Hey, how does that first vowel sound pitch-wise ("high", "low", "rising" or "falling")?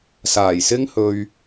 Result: low